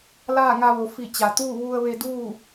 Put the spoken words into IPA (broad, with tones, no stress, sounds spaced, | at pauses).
l aː˥˨ ŋ a˧ ʋ o˩˧ f i˧˩ t͡ɕ a˩ t̪ uː˥˨ ʋ u˧ ə̯ ʋ e˧ d uː˥˨